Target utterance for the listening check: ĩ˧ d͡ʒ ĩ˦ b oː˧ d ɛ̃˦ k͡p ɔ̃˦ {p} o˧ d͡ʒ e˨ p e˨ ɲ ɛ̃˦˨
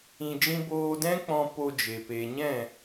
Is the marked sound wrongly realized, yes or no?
no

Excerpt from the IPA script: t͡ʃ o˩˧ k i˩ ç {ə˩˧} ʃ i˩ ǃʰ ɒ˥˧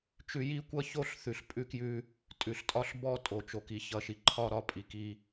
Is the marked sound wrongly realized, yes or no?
yes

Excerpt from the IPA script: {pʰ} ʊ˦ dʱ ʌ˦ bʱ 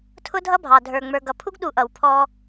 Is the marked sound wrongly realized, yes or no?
yes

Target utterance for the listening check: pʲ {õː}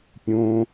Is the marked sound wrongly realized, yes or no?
yes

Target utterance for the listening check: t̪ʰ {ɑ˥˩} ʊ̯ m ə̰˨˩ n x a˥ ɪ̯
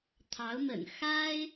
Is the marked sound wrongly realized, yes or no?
yes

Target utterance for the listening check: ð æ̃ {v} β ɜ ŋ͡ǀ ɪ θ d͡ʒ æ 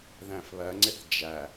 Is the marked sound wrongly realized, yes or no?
yes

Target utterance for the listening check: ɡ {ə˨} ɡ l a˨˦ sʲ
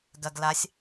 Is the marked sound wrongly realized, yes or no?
yes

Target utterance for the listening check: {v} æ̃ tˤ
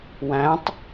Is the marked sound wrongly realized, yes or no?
yes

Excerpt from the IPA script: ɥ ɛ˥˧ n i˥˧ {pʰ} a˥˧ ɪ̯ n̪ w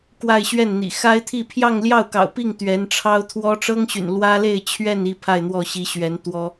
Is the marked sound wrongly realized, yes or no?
no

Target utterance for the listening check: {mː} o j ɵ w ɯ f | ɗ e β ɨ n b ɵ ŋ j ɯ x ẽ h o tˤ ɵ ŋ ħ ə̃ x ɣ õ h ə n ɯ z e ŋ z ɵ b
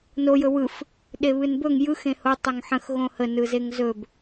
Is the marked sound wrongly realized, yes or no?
yes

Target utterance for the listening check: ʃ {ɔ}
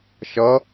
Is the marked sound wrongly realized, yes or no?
yes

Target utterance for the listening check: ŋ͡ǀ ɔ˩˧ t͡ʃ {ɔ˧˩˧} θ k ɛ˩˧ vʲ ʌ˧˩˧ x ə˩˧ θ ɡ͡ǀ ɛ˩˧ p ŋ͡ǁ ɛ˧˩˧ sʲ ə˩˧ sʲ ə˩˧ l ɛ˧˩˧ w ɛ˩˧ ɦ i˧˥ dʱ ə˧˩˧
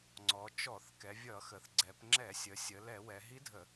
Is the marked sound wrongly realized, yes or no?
no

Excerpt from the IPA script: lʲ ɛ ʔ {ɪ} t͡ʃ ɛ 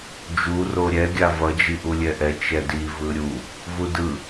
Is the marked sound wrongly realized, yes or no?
yes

